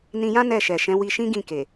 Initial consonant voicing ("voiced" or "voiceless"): voiced